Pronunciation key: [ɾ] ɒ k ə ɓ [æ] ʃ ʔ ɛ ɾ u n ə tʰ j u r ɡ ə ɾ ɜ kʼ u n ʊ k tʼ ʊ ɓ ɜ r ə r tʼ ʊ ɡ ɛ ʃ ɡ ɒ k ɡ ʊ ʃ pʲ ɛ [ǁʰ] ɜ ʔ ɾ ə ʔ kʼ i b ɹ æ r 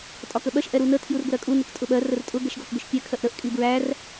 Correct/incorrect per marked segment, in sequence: incorrect: tʼ, incorrect: ɜ, incorrect: kʰ

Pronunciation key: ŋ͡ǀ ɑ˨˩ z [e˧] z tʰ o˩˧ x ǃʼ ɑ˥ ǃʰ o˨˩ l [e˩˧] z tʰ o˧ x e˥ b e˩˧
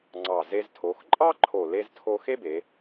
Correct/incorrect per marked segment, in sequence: correct, incorrect: e˧

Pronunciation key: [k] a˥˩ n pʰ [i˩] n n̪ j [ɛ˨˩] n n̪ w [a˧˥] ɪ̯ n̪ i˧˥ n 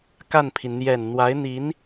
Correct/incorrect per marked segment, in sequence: correct, correct, correct, correct

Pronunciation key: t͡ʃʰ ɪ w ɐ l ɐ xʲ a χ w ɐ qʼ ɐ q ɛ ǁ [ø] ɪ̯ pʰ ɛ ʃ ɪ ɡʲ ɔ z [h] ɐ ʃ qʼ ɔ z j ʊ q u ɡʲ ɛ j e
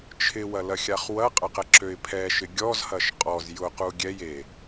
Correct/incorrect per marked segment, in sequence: correct, correct

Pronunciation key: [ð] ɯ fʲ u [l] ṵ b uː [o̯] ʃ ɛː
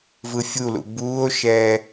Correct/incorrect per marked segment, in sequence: incorrect: v, correct, correct

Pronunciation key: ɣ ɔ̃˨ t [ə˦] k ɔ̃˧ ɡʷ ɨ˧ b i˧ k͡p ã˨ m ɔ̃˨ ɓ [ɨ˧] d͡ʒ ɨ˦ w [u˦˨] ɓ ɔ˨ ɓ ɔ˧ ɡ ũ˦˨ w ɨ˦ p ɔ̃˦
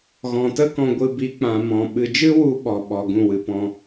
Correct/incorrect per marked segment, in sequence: correct, incorrect: ɨ˨, incorrect: u˧

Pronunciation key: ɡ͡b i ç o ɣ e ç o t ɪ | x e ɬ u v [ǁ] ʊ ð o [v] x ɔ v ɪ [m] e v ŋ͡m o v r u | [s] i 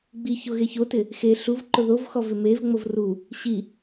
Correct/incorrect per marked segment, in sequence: incorrect: ǃ, correct, correct, incorrect: ɕ

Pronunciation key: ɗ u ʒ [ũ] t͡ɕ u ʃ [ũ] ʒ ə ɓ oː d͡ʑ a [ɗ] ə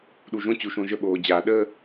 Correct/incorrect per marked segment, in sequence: incorrect: õ, incorrect: õ, correct

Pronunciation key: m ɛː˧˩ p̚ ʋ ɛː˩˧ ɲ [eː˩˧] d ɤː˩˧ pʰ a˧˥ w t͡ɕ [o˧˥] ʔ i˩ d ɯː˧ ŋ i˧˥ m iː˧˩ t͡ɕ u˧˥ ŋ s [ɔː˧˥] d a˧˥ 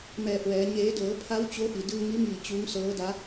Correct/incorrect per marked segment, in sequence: correct, correct, incorrect: ɤː˧˥

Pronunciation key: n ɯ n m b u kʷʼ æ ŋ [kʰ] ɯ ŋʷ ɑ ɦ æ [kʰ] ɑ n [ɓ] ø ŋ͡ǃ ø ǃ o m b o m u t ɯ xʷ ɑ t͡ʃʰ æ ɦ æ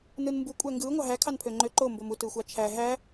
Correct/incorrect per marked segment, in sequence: incorrect: ɡ, correct, incorrect: pʰ

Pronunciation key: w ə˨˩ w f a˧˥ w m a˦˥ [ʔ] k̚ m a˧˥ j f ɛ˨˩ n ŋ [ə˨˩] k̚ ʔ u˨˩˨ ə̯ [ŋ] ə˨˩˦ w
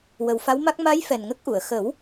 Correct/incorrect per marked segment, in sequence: incorrect: none, incorrect: ə˦˥, incorrect: x

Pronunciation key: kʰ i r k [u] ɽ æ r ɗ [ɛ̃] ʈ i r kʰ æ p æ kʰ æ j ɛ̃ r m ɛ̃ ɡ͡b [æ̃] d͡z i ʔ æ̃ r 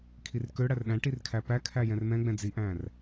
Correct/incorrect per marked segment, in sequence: incorrect: ø, incorrect: æ̃, incorrect: ɛ̃

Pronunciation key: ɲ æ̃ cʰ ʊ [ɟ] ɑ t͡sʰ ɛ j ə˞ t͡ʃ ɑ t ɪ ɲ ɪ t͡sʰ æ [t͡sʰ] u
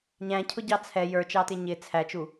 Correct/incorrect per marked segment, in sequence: correct, incorrect: t͡ʃ

